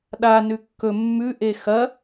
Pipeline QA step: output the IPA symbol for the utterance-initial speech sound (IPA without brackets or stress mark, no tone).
ɗ